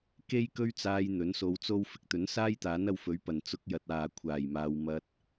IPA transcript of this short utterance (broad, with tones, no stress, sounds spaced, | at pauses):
k e˥ j k ɵ˥ ɥ t͡s aː˧ j n̪ ɵ˨˥ n s o˧ w t͡s o˥ w f ɪ˨ k̚ t̪ ɵ˨˥ n s aː˥ j t̪ aː˨˥ n ɐ˧ w f ɵ˨˥ ɥ p ɐ˨˩ n t͡s ʊ˧ k̚ j ɐ˨ t̚ aː˨ kʷʰ aː˨˩ j m aː˨ w m ɐ˧ t̚